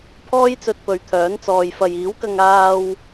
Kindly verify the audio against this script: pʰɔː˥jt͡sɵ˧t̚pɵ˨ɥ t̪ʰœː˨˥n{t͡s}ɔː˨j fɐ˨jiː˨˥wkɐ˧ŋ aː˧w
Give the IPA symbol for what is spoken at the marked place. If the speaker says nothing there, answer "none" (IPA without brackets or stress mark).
t͡s